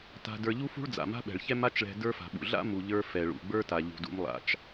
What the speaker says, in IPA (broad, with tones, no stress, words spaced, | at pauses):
ta̤˧də˞˧ ʎu˥fṳ˥ɭd͡za̰˩ ma̤˥ɓɛ̤˩ɭçɛ˥ ma˥t͡ʃɭɛ̤˧ də˞˥fa̤˩ɓṵ˩ ɮa̰˥ mu˩ʎə˞˧ fɛ˩ɭṵ˩ɡ͡bə˞˥ta˩ ʎṳ˩dṵ˧m lˠa̰˩t͡ʃ